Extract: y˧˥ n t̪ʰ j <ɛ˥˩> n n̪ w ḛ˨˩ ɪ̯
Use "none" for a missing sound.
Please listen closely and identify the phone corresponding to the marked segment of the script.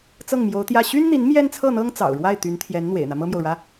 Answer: ɛ˧˥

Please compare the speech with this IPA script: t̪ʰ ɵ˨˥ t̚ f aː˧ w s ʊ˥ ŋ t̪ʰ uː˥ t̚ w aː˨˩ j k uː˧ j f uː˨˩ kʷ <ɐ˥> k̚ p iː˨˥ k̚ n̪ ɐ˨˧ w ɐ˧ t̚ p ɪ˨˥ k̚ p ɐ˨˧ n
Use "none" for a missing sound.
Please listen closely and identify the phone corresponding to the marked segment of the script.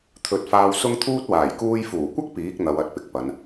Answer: ɐ˥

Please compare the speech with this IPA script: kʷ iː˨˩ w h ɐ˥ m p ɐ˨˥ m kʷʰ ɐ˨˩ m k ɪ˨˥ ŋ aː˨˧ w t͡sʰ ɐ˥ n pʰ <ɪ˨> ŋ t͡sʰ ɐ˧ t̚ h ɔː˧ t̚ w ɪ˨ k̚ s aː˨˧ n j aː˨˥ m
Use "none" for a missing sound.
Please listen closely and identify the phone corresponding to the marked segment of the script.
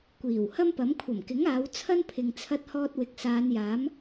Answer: ɪ˨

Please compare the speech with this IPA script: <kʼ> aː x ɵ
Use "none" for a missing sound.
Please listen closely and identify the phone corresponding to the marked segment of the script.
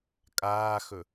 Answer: kʼ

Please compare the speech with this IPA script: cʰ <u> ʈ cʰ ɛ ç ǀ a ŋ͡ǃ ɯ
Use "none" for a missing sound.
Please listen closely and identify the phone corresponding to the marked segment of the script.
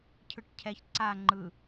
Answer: ɯ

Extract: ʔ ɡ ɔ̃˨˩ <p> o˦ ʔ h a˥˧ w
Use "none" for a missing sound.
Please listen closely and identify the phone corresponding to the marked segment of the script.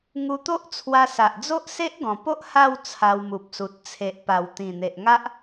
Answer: p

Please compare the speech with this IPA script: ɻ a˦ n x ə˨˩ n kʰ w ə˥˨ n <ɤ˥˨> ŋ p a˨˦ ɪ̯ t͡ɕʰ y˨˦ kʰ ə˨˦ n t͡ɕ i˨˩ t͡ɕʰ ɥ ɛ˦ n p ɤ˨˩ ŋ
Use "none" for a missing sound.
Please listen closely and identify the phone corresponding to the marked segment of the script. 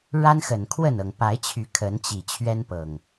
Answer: ɤ˨˩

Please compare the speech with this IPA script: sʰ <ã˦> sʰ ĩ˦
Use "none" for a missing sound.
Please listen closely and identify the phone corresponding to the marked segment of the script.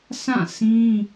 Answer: ã˦˨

